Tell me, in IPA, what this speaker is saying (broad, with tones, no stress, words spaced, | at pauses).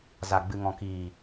za˨ɡ͡bɨ˨ŋɔ̃˨kiː˨